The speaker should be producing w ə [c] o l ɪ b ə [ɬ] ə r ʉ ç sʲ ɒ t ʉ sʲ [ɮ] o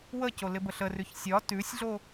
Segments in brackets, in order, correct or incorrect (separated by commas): correct, correct, correct